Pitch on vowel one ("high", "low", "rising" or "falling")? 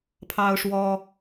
high